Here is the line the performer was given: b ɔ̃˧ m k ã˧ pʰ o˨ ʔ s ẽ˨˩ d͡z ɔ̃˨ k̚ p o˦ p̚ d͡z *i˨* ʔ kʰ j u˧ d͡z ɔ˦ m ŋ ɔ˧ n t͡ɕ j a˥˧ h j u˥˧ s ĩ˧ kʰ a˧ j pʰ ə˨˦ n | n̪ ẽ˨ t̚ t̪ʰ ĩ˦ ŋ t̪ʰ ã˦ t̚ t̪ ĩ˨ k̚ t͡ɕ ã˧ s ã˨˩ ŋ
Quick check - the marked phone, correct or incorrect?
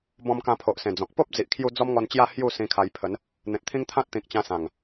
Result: correct